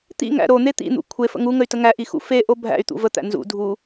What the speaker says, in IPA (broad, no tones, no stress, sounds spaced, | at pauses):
t̪ ḭ ŋ æ̰ ɾ o n̪ e t̪ ḭ n̪ ṵ kʷʰ e f ə̰ ŋ u ŋ ə y̯ t ə ŋ æ ʔ i x ṵ f e ʔ o bʱ æ̰ y̯ t̪ ṵ v ə t̪ æ̰ n z ṵ dʱ u